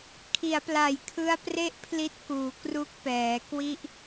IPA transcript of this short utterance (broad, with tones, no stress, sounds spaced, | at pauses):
kʰ i˩˦ a̯ p l a˨˩ j kʰ ɯ˦˥ a̯ p r e˥˩ ʔ pʰ l i˦˥ t̚ k uː˩˦ k r u˦˥ k̚ p ɛː˩˦ k w i˥˩ ʔ